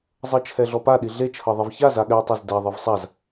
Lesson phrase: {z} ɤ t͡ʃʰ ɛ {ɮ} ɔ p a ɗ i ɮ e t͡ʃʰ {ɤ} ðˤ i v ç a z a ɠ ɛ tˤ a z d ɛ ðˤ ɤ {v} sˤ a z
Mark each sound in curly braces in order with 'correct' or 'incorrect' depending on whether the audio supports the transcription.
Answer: incorrect: zˤ, correct, correct, correct

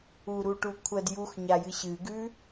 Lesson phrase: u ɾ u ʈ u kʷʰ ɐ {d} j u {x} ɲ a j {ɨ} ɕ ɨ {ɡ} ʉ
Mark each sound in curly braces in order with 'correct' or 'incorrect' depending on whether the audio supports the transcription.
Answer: correct, correct, correct, correct

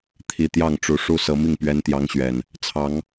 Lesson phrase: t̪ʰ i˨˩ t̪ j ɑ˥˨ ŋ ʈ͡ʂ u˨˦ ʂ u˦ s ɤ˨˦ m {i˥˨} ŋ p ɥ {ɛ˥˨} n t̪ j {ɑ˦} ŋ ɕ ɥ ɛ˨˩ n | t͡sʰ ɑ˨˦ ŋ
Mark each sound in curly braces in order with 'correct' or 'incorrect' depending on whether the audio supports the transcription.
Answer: correct, incorrect: ɛ˦, correct

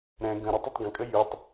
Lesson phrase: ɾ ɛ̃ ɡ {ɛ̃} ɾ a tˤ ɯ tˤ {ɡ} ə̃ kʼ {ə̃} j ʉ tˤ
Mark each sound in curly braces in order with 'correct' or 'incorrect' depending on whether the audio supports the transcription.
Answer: incorrect: ə̃, correct, incorrect: ə

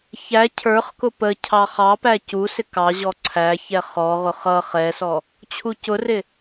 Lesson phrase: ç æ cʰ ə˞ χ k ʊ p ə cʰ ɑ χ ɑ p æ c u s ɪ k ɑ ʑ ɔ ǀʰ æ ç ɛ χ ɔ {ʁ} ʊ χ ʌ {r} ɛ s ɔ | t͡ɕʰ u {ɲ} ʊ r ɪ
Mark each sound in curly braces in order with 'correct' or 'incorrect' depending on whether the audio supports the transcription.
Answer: correct, incorrect: χ, incorrect: c

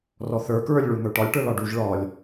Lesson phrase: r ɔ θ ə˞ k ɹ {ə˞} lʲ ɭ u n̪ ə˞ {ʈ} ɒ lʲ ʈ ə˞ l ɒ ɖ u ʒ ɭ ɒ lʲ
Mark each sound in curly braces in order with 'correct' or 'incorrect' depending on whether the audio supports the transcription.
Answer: correct, correct

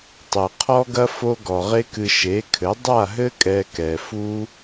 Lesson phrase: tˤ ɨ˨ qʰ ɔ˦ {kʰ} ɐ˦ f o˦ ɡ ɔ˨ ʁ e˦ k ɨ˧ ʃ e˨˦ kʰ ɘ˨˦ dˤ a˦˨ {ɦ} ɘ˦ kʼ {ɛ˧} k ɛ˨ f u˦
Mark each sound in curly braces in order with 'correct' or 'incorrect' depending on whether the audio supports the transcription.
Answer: incorrect: ɡ, correct, correct

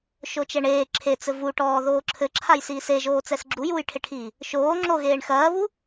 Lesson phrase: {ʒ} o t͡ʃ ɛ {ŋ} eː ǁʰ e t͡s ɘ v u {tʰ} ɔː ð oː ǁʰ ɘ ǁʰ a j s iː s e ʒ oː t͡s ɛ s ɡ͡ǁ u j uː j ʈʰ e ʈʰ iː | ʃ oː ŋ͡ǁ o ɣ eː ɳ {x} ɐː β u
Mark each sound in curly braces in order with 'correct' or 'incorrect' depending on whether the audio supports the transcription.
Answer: incorrect: ʃ, incorrect: ɳ, incorrect: ʈ, correct

